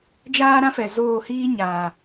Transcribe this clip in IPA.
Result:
d͡ʒ aː˦ ɾ ã˦ f ɛ˨ z oː˦˨ h iː˦ ɲ aː˨

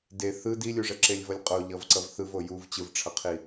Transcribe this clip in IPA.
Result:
d e θ ɯ d i lʲ u ʐ ɛ ǁ e lʲ v ʌ lʲ qʼ o ʎ ʌ v ǀ ʌ v θ ɯ v o j u v t͡ɕ ɯ v ʈ͡ʂʰ ʌ qʰ i

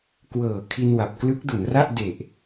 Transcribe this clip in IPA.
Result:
k w ɤː˨˩ kʰ i˧ n w a˨˩ p̚ k l ɯ˦˥ k̚ d u˩˦ n r a˥˩ ʔ d e˨˩ ʔ

